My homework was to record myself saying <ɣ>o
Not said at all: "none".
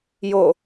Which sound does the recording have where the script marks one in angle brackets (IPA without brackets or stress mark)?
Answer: j